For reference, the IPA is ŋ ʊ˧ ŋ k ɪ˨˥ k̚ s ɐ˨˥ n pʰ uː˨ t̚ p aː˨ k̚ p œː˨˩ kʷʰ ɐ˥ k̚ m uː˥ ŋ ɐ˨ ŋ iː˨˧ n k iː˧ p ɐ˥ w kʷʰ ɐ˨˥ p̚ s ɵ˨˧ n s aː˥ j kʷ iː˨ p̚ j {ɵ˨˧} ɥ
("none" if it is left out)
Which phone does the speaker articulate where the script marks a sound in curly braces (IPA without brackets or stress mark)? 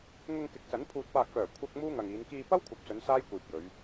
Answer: ɵ˨˧